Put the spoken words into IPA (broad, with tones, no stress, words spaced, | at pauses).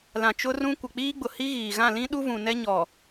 lã˨t͡ʃʊ˦rũ˦ kʷɪ˨k͡piː˦ɡ͡bʊ˨ hi˦ɣiː˨ɣã˦˨ lĩ˦ɗu˦vũ˨ nɛ˦ ɲɔ˨